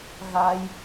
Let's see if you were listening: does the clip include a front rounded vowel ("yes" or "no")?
no